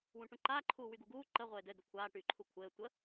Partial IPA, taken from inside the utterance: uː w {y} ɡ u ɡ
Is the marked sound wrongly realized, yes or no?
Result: no